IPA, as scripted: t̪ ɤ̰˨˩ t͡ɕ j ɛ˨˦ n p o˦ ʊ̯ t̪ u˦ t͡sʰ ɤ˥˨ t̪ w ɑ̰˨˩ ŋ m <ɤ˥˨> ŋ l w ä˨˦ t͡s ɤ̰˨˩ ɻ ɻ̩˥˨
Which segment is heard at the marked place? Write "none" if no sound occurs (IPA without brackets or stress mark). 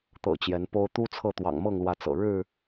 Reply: ɤ˥˨